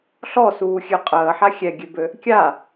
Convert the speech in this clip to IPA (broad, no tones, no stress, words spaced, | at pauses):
ɬɔsuːxʲø qʼəːħa xʲɛɡʲøbø | kʲa